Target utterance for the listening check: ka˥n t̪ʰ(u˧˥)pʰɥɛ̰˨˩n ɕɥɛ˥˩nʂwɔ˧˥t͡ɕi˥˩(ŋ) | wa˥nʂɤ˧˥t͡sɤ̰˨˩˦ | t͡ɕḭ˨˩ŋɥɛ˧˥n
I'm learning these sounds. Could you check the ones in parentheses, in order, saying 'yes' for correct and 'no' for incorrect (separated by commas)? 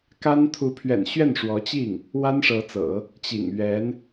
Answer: yes, yes